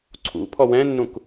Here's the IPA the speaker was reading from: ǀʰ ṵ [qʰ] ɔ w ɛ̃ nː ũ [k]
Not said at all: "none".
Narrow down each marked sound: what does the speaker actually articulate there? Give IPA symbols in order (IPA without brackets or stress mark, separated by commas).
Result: pʰ, k